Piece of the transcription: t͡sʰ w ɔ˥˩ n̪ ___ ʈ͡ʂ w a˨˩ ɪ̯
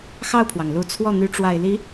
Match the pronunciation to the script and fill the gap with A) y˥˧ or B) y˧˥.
B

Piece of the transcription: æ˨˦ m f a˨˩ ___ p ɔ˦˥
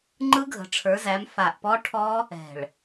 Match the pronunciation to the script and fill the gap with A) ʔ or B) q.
A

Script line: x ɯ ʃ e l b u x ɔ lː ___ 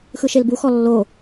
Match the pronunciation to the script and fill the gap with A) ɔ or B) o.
B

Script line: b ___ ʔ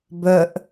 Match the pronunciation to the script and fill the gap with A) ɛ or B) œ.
B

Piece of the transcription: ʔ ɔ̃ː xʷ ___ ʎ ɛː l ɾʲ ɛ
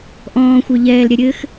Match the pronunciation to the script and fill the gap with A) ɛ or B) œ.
B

